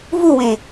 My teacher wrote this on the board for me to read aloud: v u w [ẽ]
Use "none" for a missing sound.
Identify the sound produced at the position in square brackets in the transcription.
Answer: ẽ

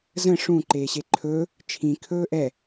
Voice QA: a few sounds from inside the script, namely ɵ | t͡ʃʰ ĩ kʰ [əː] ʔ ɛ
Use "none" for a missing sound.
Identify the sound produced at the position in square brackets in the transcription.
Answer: ɵː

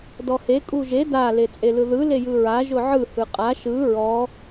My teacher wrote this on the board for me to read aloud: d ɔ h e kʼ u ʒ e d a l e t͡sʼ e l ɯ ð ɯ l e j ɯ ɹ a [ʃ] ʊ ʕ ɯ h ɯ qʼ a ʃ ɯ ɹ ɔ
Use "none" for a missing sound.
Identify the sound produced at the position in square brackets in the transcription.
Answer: ʒ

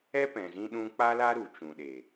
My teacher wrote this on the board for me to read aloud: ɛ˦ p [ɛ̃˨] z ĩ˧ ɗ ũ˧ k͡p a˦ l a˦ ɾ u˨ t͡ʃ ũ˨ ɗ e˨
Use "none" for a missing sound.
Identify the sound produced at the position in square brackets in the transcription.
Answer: ɛ̃˨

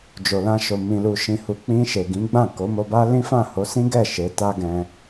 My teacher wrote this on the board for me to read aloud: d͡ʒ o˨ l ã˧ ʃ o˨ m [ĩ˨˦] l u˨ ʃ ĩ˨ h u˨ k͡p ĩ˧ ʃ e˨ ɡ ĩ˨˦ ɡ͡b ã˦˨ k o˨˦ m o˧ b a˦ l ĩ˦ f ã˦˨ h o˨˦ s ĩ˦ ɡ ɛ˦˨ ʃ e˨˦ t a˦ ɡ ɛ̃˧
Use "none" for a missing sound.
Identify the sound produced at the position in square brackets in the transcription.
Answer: ĩ˨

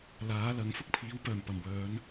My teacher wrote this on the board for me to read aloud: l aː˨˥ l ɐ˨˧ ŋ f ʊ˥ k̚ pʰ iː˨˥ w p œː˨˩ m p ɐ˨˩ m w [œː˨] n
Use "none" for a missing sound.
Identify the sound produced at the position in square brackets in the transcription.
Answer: œː˨˧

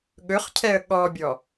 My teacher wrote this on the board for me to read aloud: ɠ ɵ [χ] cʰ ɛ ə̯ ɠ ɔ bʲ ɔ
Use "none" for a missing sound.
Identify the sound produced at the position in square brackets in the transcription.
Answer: χ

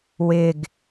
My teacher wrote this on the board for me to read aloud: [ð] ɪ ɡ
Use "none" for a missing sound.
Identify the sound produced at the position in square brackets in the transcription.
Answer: w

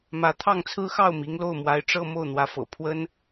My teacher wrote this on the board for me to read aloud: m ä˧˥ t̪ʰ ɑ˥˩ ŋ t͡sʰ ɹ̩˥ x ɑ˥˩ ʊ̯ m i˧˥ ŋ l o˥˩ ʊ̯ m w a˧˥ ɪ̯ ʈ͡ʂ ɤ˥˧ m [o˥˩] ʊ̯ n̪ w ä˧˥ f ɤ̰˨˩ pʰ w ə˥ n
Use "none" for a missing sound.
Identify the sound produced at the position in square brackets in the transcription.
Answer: o˥˩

